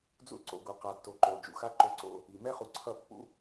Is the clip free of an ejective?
yes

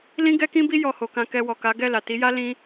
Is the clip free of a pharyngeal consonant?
yes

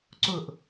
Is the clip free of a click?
no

